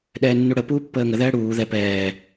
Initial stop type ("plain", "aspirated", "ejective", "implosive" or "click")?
implosive